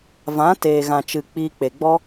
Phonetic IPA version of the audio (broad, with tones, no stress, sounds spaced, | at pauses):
v ã˨˦ t eː˨ ɣ ã˨ t͡ʃ ɨ˨ k͡p iː˧ k͡p e˨ ɡ͡b ɔ˦